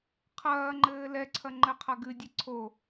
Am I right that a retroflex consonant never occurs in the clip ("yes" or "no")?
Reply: yes